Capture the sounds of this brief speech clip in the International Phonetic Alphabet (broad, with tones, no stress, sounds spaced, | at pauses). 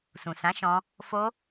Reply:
s ũ˨ s ã˨˦ ʃ ɔ̃˧ | f o˧